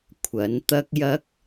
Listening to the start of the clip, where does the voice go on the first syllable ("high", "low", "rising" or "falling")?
rising